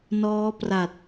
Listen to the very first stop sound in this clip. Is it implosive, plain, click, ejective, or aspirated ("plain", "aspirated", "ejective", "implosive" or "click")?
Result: plain